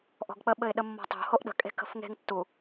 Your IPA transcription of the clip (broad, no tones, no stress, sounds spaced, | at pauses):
ʔ ɔ̤ ɡ k͡p ə ɓ ɘ ɪ̯ ɗ ə mː ɔ̤ tˤ o̤ h o ʔ ɗ ə̤ kʼ e̤ k ə̤ f ŋ e̤ ŋ tː u